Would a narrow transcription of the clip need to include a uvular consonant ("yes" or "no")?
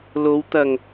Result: no